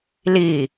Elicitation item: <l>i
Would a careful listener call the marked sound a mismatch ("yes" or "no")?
no